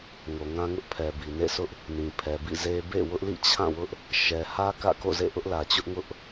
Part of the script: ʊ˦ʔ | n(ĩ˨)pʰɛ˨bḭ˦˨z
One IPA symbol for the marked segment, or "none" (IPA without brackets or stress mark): ĩ˨